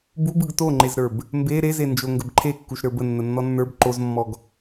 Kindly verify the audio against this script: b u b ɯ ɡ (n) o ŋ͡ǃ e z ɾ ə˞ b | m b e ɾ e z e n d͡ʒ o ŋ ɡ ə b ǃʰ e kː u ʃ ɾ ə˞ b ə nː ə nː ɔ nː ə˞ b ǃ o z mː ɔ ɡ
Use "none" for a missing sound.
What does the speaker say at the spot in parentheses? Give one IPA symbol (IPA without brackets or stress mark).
t